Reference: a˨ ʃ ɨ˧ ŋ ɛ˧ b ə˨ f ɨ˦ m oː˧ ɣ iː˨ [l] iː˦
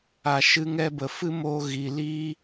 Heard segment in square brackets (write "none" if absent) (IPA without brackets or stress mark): l